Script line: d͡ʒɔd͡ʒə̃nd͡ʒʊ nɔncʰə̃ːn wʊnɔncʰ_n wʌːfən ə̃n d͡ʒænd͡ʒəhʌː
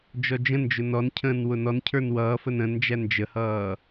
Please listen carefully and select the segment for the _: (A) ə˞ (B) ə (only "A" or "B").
A